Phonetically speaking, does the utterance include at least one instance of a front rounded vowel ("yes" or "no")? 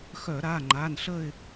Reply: yes